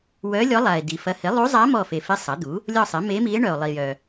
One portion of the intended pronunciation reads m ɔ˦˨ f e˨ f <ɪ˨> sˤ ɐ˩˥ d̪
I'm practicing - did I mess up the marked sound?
yes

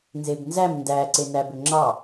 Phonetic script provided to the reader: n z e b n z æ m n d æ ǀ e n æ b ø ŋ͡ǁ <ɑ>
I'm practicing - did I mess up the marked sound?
no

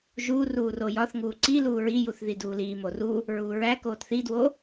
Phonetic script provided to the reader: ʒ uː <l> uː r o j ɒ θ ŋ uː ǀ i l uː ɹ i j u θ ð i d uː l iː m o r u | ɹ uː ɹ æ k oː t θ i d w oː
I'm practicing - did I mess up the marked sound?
yes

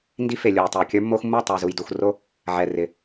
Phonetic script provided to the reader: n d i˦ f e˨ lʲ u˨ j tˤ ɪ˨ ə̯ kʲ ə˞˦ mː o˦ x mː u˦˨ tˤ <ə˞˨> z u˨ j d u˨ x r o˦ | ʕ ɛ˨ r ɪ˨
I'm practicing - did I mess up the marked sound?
no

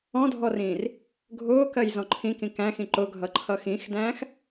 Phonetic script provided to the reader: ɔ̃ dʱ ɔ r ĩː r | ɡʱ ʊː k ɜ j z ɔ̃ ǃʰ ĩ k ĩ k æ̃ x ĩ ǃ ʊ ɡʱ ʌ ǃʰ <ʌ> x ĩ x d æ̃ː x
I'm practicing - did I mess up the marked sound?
no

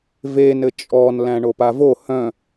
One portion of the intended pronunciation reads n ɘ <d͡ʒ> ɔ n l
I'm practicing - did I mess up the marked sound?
yes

